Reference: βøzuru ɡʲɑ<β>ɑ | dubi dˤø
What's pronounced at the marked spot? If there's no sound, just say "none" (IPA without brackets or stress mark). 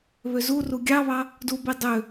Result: β